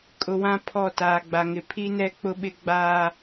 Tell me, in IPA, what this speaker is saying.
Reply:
kʼ ʊ˨ w ã˦ pʰ ɔ˦˨ t aː˨ ɡ͡b a˨ ŋ ɪ˨ pʰ i˦ n ɛ˦ k͡p ʊ˦ ɓ ɪ˦ ɡ͡b aː˦

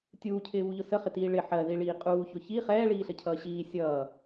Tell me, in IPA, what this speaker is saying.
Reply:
tʲ uː cʰ ɪː β u ʎ ʊ s ə χ ɪ t iː ɭ ɪ ħ ɜ ð i ɭ iː qʼ uː ç ʊ ç i χ ɛː ɭ iː ɬ ə cʰ ʌː ɕ iː sʲ ʌː

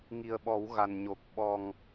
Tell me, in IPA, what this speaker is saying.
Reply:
ŋ i˨˩ ə̯ ɓ ɔ˨˩˦ w ɣ a˨˩ n ɲ o˨˩ k̚ ɓ ɔ˨˩ ŋ

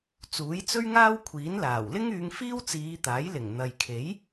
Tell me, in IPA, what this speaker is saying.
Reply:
t͡s uː˨˥ j t͡s ɵ˥ ɥ ŋ aː˥ w kʷʰ iː˨˥ n l aː˨˩ w l ɪ˥ ŋ yː˧ ŋ f iː˥ w t͡s iː˨˧ t̪ aː˨˥ j l ɪ˨˩ ŋ n̪ ɐ˨ j kʰ e˨˥ j

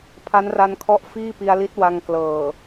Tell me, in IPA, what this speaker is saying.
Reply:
pʰ a˦˥ n r a˧ n kʰ ɔ˦˥ ʔ f iː˥˩ p i˧ a̯ l i˦˥ t̚ w a˧ ŋ k l ɤː˨˩

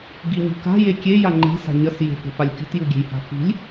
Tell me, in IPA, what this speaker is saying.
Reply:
ɡ i ɲ ṳ k a̤ j e kʲ e j a ŋ͡ǃ e̤ s a̤ ɲ ɐ s j e̤ f o̤ f a lʲ kʲ o̤ t j u ɡʲ e̤ j h a̤ f i̤ lʲ

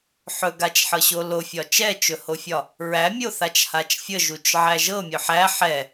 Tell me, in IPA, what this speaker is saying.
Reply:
ħ ɵ ɡ a t͡ʃ ħ ɤ ɕ o l o fʲ ɒ t͡ʃ ɛ t͡ʃ ɵ h o fʲ ɒ | ɹ æ mʲ o θ a t͡ʃ h a t͡ʃ fʲ ə ʒ u t͡ʃ ʕ æ ʒ ɤ mʲ ɵ ħ æ ħ ɛ

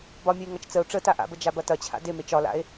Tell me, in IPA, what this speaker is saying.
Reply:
b ɒ mʲ ə e̯ ŋ ɐ t͡ʃ t͡s ə o̯ ʈ͡ʂ ə t a ʔ a̰ b ə d͡ʒ a b ɐ t ɐ t͡ɕʰ a̰ d e m e t͡ʃ ɒ l a̰ e̯

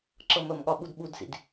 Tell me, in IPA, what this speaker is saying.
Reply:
ǁ ɤ m ə m ɠ ɒ ɓ u d ɓ u d s ḭ d

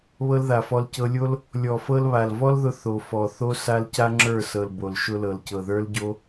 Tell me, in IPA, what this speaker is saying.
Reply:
β ɤ˦ l ð a˨ f ɔ˧ l c ɤ˧ lʲ o˦ l | lʲ ɔ˨ f ɤ˧ l β a˨ l v ɔ˦ l ð ʊ˧ θ o˨ f ɔ˨ θ o˦ s a˦ l c a˦ ŋ͡ǁ ə˞˦˨ s ɤ˨ l b o˨ l ʃ ʊ˦ l ɤ˨ l c ɤ˨ ð ə˞˦ l ɟ o˦

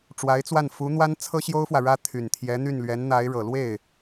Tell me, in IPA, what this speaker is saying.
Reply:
ʈ͡ʂ w a˧˥ ɪ̯ t͡s w a˥˩ n f u˧˥ n̪ w a˥ n t͡sʰ ɤ˥ ɕ j o˥ ʊ̯ f w ä˨ ɻ ä˥ t̪ʰ y˨˩ n t̪ʰ j ɛ˧˥ n̪ y˥˩ n l ɥ ɛ˧˥ n n̪ a˧˥ ɪ̯ ɻ ɤ˨˩ l w e˥˩ ɪ̯

